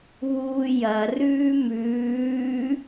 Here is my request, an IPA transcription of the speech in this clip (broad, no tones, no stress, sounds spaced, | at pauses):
β uː j ɐ r ʉː m ʉː